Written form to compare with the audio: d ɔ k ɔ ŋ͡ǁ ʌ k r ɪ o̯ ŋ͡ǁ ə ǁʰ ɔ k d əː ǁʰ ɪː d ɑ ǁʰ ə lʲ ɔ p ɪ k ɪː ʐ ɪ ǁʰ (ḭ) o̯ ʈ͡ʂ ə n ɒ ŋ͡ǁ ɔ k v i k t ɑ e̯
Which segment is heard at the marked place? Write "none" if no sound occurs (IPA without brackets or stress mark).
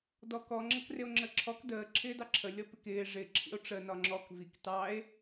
ḭ